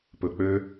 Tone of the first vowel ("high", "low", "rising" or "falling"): low